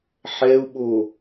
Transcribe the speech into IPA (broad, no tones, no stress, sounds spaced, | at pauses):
ħ ɛ u̯ ɓ o